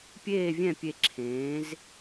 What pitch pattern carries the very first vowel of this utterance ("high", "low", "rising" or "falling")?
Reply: falling